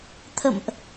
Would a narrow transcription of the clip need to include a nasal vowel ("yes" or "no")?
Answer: no